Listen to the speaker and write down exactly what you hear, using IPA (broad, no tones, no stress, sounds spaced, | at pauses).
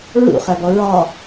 ɹ ṵ χ æ b ɔ ɹ ɑ